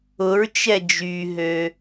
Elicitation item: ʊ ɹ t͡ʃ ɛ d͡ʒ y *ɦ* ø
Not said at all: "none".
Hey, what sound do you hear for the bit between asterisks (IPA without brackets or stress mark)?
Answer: ɦ